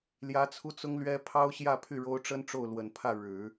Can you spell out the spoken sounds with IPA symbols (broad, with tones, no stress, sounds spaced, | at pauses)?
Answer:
l j ä˧˥ t͡sʰ u˥ t͡s ʊ˥ ŋ l ɥ ɛ˥ pʰ ɑ˥ ʊ̯ ɕ j ä˥˧ pʰ y˥˩ ɻ o˥ ʊ̯ ʈ͡ʂ ə˥ n ʈ͡ʂ o˥˩ ʊ̯ l w ə˨˩ n pʰ ä˥˩ ɻ ɻ̩˨˩˦